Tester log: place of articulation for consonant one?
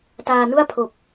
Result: alveolar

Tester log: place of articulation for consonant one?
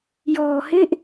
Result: palatal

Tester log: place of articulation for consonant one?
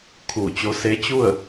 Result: velar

